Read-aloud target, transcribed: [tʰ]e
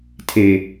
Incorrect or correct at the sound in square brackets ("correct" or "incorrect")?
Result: correct